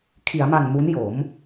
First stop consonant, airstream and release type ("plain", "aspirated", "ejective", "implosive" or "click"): aspirated